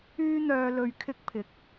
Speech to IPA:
yː˥n̪œː˧ lɵ˧ɥkʰɪ˥k̚pʰɪ˨k̚

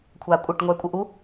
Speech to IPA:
kʷʰaːkʷʼɘʈ ŋʷɛːkʷʼəʔu

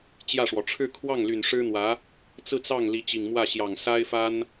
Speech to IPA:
t͡ɕjä˥˩ʂwɔ˩ ʈ͡ʂʰɻ̩˥˧kʰwɑ˥˩ŋly˨˩n ʂɻ̩˥n̪wä˧˥ | t͡sɹ̩˥˧ t͡sɑ˥˩ŋ li˧˥t͡ɕi˨˩ŋmwä˥˩ɕjɑ˨˩ŋ sa˥ɪ̯fa˥n

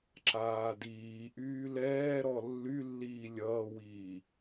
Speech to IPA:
ǁaːdiːʔyː lɛːɾɔ lːylːiː lʲʌːwiː

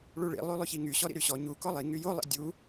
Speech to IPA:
ɭuɭḭ lˠylˠyçiŋy ɕɔɾḭɾyɕɔ ɲu kɔlˠi ŋyjo lˠḭdʲu

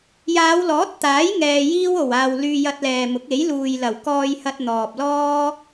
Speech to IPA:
jaː˨˧wlɔː˨˥t̚t̪aː˨˥j ŋɛː˧jiː˥w o˨˩waː˨w lyː˧jɐ˧t̚lɛː˨mʊ˨˥k̚ e˨˥jluː˨j lɐ˨˩wkɔː˧jhɐ˧t̚ n̪ɔː˨p̚lɔː˥

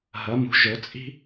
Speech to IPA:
ɦɐ˨˦mṳ˨˦ʒɵ˨˦t͡sʼi̤˥

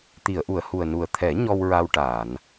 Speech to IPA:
t̪i˨˩˨ə̯ʔu˨˩˨ə̯hu˨˩ə̯ nu˨˩ə̯t̪ʰɛ˨˩˦ ɲɔ˧wɹa˧wʈaː˨˩˨n

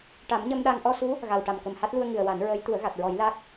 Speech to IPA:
ʈa˨˩˦mɲə˧mɗa˧ŋ ʔɔ˧su˧˥ | ɣa˨˩wʈa˨˩m kə˨˩mha˦˥t̚lu˧ə̯ ŋɨ˨˩ə̯wa˨˩˦n ɹəː˧˥jt̪u˨˩˦ə̯ɣa˨˩t̚ɹɔ˨˩˦j la˦˥k̚

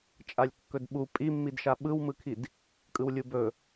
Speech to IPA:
t͡ʃʼalʲkːɵdɓu pʼimːidʃa ɓɯwmɯkʰid | kʼɯwlʲubɵ

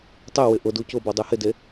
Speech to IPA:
tˤɪwɪ ʔʊdu cʊbɔ dˤehɪde

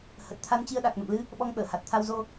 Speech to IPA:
hə˨˩t̚t̪ʰa˧nt͡ɕi˧ə̯ɗa˨˩k̚ no̰˧˨mlɨ˧ | ɓɔ˧ŋɓəː˧˩ ha˨˩t̚t̪ʰa˧wzo˧

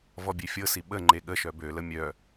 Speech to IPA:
vɔbʲefʲɤsi ɓə ŋ͡ǃeɠəʃœ bølə mʲœ

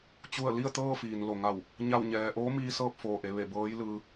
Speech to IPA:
t͡ɕu˧˩ə̯li˥˨ə̯ t̪ɤː˥˨fiː˩n lo˩ŋa˧˩w | ɲa˥˨wɲɛː˧ ʔoː˧˥miː˧ sɤː˥˨p̚foː˩ʔe˩˧ʋe˧˩ bɤː˧˥j lɯː˧

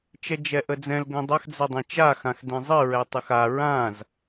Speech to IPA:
t͡ʃɛd͡ʒɛʔəd͡zɛ̃l ɡə̃dˤax d͡zɛdˤɛ̃t͡ʃa xãxdɛ̃zˤɨ ɹɛtˤɨxa ɹãz

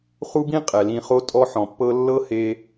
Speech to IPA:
χu˦bĩ˦ qʼɛ˨lĩ˧χo˦ tʼɔ˦ħɔ̃˨pːɤ˦ lːɤ˦he˧

